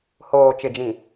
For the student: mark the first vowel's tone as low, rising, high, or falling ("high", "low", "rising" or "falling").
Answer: low